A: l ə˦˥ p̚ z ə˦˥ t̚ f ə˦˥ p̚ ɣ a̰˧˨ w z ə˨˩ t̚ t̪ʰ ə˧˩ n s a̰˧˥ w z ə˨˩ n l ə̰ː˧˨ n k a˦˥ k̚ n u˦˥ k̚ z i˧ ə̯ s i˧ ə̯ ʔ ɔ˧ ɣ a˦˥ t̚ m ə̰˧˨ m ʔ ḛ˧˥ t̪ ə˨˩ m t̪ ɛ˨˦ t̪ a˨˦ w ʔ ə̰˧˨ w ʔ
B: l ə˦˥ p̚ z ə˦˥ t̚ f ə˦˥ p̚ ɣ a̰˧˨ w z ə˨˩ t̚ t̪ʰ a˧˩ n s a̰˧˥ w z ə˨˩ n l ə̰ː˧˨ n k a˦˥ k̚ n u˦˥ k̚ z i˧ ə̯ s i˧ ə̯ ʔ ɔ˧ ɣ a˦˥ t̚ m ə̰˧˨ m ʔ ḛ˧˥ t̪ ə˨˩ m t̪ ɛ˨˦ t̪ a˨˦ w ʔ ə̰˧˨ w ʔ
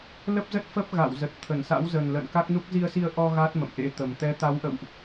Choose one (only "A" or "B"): A